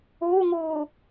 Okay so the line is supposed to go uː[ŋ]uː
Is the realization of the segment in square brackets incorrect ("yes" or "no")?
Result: no